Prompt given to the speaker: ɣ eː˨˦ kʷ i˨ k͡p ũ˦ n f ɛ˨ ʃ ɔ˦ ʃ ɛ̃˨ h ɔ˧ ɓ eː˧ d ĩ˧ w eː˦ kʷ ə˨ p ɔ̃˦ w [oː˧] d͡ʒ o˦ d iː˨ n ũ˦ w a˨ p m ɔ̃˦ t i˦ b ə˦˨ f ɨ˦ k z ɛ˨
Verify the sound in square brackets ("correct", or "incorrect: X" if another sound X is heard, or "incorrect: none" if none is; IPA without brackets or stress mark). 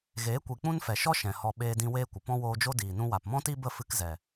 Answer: correct